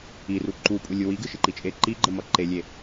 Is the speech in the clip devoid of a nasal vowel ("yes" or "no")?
yes